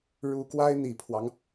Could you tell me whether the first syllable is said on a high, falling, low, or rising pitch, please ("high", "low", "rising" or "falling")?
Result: rising